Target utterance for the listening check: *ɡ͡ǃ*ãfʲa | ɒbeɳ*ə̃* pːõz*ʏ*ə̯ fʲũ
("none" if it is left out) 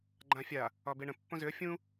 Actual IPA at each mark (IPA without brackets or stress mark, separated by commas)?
ɡ͡ǃ, ə̃, ʏ